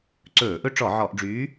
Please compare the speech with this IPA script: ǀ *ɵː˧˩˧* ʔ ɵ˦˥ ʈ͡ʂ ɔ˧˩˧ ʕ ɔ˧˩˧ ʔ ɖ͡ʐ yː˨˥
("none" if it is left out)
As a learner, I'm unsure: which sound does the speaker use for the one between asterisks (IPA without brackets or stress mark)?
ɵː˧˩˧